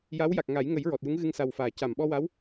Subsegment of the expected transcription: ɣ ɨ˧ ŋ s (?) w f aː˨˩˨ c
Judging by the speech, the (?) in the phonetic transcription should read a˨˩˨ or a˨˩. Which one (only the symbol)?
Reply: a˨˩